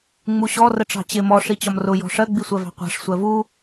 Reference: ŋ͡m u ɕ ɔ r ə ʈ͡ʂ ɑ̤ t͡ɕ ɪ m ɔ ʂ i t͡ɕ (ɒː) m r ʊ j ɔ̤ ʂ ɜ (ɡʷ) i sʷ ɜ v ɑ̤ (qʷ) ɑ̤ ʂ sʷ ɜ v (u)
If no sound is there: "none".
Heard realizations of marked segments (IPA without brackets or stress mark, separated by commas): ɒ, ɡ͡b, qʷ, u